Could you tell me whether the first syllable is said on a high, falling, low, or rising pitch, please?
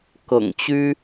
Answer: low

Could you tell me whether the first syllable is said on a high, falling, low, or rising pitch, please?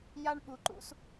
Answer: high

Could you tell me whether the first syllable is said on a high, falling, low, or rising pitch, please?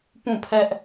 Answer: falling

